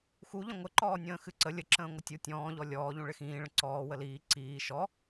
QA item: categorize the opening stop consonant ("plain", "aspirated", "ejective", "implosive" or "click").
click